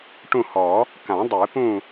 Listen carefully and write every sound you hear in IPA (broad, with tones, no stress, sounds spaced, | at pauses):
ʈ ũ˦˨ h ɔ˨˩˦ | k ã˨˩˦ dˤ e˨˩˦ p ũ˦˨